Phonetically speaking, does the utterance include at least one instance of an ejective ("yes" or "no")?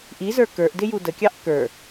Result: no